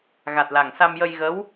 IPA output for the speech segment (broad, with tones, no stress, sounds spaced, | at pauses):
ɣ a˨˩ t̚ l a˨˩ ŋ s a˧ m j ə˧ j ɣ ə˧˥ w